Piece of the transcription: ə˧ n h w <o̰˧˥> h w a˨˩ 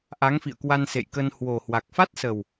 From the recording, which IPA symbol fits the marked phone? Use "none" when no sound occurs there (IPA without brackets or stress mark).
o˨˩